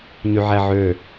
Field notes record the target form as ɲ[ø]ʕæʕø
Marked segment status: incorrect: y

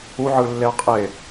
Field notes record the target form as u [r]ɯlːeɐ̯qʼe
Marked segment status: incorrect: ʕ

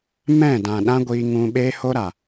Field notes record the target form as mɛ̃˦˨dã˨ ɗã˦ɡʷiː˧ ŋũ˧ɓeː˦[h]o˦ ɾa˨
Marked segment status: correct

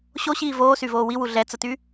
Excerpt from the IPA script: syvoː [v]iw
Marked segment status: incorrect: w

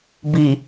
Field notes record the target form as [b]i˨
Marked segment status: correct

